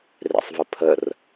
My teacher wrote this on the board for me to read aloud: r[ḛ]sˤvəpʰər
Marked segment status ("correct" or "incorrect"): correct